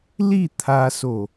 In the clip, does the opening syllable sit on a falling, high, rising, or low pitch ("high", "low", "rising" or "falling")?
falling